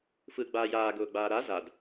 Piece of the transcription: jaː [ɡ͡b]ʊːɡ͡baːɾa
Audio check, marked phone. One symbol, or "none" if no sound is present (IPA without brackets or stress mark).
ɡ